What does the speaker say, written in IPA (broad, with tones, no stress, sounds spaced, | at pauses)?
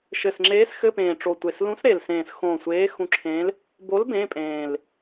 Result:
ʃ ɘ˨˩ s ŋ͡ǁ eː˧˥ s x ɘ˧˥˧ p ẽː˨˩ ʈ͡ʂ o˨˩ tʷ e˨˩ s l ũ˧˥ s ɾ e˨˩ l s ẽː˨˩ s x õ˨˩ sʷ eː˧˥ x ũ˧˥ ǁʰ ẽː˧˥ l | b o˧˥ l b ẽ˧˥˧ pʼ ẽː˨˩ l